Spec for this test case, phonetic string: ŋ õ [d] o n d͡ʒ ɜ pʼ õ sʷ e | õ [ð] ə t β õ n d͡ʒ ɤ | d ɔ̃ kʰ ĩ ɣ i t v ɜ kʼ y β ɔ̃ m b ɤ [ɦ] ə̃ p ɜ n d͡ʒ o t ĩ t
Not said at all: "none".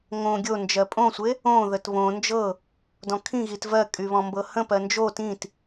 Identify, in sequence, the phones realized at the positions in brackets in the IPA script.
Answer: ɡʲ, ð, h

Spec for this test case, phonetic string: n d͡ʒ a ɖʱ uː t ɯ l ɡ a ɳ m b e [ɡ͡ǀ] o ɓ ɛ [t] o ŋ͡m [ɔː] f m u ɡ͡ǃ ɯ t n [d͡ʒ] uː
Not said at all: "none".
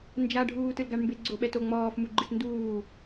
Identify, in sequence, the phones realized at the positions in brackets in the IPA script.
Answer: ɡ͡ǀ, t, ɔː, d

